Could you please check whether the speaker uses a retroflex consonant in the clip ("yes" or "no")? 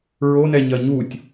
no